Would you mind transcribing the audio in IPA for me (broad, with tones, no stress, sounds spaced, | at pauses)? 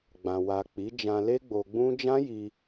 ɡ͡b ã˨ w a˨ k͡p i˨˦ d͡ʒ ã˧ l e˦ ɡ͡b o˧ ɡ͡b ũ˦ d͡ʒ ã˦ j i˧